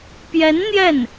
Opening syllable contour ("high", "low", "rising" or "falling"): rising